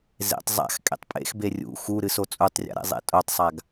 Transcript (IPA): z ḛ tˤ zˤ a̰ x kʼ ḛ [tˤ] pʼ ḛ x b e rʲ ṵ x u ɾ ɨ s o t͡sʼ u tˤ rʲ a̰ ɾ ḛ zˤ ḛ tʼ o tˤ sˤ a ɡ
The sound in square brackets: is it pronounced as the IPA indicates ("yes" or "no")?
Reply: yes